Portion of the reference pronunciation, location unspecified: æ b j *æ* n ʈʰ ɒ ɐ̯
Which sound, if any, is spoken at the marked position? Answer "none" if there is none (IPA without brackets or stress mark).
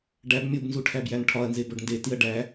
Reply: æ